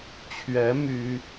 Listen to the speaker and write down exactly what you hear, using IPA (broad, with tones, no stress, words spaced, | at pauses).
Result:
t͡ɕʰɥɛ˧˥ my˥